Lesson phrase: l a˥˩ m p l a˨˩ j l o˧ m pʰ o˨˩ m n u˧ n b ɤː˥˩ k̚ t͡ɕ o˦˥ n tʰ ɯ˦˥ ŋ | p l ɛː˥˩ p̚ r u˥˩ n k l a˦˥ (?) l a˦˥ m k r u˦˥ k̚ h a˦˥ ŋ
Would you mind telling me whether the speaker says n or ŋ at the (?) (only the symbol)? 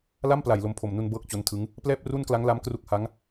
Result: ŋ